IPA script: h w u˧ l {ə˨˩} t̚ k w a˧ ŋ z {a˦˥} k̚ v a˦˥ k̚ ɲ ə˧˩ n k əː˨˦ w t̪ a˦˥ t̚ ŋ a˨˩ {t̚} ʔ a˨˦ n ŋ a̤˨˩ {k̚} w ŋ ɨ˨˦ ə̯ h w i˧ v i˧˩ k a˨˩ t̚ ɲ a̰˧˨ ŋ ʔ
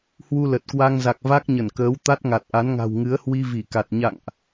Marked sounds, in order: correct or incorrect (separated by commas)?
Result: correct, incorrect, correct, incorrect